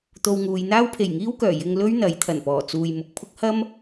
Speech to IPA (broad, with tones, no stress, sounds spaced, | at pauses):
t̪ o˧ w ŋ uː˨˧ j n̪ aː˥ w pʰ e˨˩ j ŋ iː˥ w k œː˨˩ j ɪ˧ ŋ l ɵ˥ ɥ n̪ ɐ˨˥ j t̪ʰ ɐ˨˩ n p ɔː˨˩ t͡s uː˨ j m ʊ˨ k̚ pʰ ʊ˥ k̚ h ɐ˥ m